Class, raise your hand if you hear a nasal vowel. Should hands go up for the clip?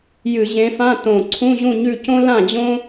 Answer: yes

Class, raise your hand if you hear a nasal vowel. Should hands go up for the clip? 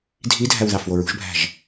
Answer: no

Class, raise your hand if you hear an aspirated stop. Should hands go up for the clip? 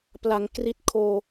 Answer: yes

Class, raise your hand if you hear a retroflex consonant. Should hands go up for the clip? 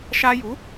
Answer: no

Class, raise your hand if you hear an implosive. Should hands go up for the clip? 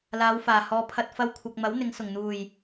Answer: no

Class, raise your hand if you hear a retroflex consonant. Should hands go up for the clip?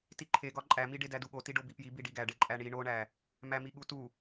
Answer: yes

